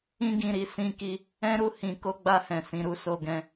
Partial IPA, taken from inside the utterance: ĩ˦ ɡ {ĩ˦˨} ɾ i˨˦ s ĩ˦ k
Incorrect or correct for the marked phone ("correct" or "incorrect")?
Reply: correct